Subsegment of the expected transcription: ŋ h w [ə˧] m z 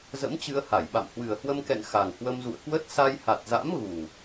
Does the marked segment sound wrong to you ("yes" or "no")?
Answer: no